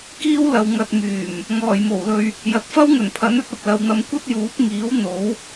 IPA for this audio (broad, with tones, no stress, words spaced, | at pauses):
kiː˥wlɐ˨w ŋɐ˨t̚myː˨˩m | ŋɔː˨˩jmo˨˩wlɵ˧ɥ | jɐ˨t̚fɐ˥w ŋɵ˨˩npʰɐ˨˥nɵ˧t̚ ɐ˨p̚lɐ˨wn̪ɐ˨˧m kʷɐ˥t̚juː˨˥p̚ŋiː˨˥w n̪o˨˥w